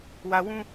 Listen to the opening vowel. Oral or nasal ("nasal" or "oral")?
oral